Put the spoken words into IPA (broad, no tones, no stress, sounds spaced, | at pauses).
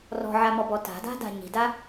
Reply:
r ɔ̤ ʕ a m ɔ b ɔ t a̤ d a̤ d a̤ ɲ i̤ d a